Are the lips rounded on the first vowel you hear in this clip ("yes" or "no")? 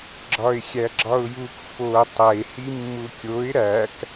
yes